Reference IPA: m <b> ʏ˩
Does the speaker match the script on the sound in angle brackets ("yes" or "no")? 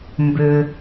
yes